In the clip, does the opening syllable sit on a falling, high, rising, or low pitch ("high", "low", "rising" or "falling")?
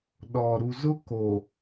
low